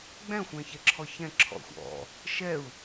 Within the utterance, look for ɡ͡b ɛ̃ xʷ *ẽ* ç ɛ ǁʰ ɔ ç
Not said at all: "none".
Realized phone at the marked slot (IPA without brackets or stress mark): ɛ̃